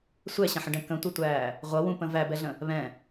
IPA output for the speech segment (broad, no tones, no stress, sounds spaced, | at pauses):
sʷ ɛ ɕ ə̃ ħ ə̃ ɖ ɛ̃ k ə̃ tʷ ʌ tʷ æː | ʁʷ ʌ w ũ p ə̃ v æ b ɛ ɮ ə̃ | β ɛ̃